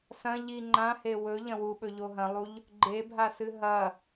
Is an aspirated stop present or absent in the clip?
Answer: absent